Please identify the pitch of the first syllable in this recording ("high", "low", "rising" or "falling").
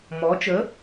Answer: rising